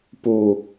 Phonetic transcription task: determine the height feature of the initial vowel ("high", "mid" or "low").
high